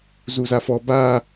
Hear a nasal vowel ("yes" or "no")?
no